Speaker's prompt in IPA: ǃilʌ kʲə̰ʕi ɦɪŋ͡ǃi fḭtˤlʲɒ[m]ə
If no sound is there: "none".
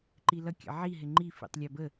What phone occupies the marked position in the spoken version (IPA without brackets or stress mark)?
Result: b